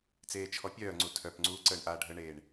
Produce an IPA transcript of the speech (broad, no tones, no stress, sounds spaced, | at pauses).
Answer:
t͡s eː t͡ʃʰ ɔ pʲ œː ŋ͡ǀ u tʰ œ p ŋ͡ǀ uː ǀ əː ɳ ʔ aː ɖʱ ə ɳ eː ɳ